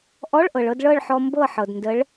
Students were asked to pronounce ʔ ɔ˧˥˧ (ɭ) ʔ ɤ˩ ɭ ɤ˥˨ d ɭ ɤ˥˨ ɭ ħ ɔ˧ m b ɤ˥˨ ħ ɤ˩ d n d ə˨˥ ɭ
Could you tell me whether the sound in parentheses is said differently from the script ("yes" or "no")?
no